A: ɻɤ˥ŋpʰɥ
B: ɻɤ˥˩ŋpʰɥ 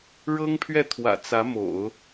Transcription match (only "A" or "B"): A